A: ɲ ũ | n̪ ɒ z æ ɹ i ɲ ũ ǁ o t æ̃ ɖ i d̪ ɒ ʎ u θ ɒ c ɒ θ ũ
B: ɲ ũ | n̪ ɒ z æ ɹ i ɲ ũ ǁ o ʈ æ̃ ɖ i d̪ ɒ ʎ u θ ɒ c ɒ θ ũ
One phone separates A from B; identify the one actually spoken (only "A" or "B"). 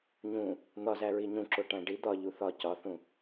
B